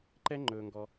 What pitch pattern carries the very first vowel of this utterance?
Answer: high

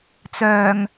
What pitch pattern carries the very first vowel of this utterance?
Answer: low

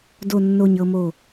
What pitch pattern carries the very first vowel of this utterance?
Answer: low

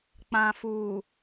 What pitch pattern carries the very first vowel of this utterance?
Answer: low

